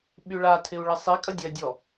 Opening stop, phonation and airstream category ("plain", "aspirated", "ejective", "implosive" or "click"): implosive